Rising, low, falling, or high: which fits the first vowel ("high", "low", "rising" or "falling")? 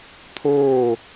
falling